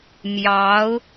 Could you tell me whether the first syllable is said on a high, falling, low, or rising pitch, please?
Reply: rising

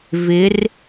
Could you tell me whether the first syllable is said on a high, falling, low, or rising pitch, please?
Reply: rising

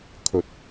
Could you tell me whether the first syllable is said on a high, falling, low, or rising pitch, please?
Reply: low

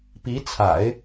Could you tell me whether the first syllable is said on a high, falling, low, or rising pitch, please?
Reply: rising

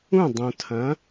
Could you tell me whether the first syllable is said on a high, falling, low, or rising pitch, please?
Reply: falling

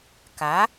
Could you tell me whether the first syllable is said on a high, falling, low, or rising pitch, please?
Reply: rising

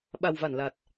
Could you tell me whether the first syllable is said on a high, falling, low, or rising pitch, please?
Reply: low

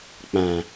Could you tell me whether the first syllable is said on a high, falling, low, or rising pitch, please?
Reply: low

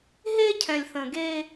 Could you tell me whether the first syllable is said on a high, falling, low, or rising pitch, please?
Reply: high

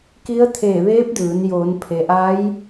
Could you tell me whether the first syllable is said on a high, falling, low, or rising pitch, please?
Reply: rising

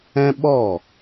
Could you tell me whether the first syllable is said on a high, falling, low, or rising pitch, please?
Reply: high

